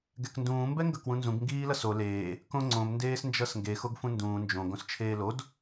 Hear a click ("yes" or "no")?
yes